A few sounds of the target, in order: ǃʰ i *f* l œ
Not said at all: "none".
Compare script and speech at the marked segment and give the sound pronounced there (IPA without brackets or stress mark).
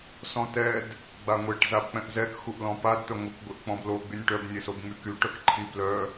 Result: b